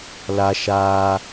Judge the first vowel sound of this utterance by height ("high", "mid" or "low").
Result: low